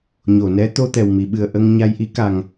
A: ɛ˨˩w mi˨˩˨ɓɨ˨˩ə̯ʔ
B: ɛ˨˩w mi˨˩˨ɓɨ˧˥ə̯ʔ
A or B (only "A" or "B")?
A